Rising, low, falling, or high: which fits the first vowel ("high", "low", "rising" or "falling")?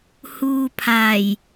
low